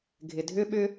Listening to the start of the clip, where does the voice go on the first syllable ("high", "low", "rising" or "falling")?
low